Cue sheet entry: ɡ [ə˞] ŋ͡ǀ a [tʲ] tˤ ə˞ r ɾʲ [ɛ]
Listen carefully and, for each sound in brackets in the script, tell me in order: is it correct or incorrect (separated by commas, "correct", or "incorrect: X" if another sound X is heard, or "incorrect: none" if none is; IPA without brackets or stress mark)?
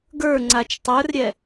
correct, incorrect: t͡ʃ, correct